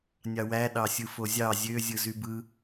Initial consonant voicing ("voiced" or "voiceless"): voiced